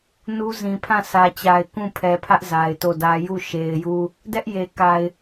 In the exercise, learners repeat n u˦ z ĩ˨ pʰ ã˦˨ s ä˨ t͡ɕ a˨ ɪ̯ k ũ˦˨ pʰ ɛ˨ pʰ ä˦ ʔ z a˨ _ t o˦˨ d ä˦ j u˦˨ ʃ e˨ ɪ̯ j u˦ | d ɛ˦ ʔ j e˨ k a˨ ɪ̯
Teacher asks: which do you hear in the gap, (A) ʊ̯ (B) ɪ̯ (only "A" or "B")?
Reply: B